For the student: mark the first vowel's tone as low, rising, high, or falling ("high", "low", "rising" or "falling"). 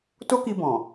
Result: high